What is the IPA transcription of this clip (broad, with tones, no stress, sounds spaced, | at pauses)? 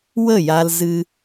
w ə˦˨ j a˧ l z ɨ˦